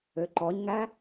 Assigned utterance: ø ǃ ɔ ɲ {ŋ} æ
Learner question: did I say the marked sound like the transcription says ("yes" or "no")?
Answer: yes